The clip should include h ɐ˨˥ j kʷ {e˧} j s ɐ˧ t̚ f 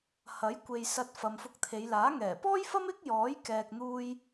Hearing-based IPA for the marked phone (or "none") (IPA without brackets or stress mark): e˨